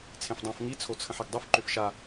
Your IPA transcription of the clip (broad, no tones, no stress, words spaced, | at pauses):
t͡sʰẽfdˤãf ŋi t͡sʰot͡sʰə̃ħiɡdˤʏf ǃʏfʃa